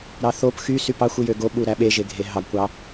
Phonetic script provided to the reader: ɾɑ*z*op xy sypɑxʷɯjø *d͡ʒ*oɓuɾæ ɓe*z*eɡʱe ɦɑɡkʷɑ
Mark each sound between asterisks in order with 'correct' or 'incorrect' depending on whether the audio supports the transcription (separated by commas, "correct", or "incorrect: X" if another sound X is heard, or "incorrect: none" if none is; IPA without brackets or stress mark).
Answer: incorrect: θ, incorrect: ɡ, incorrect: ʒ